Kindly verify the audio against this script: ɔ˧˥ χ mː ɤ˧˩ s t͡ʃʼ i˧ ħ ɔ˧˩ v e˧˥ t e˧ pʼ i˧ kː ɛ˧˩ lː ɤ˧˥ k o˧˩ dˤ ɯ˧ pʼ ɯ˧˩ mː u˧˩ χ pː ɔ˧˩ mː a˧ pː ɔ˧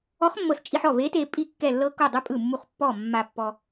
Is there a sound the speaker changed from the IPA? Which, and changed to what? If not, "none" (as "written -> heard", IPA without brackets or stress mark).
none